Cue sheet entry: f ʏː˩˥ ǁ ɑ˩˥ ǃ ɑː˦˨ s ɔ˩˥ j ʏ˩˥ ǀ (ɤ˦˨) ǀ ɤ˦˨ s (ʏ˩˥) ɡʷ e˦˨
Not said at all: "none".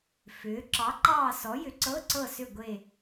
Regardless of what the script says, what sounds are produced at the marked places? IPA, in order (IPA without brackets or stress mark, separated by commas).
ɤ˧˥˧, ʏ˦˨